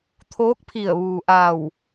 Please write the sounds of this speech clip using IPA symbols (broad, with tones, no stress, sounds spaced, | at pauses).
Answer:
t̪ʰ oː˧˥ k̚ pʰ i˧˩ ə̯ ʋ uː˩ ʔ a˧˩ w